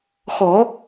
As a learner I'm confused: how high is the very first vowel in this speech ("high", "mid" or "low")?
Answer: mid